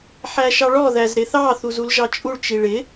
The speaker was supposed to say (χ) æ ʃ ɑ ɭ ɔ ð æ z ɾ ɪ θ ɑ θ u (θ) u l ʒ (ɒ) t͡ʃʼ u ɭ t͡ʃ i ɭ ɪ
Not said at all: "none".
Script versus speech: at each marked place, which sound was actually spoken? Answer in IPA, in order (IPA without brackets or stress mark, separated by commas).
ħ, z, ɑ